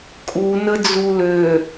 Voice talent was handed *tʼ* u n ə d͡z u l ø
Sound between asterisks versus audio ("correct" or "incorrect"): incorrect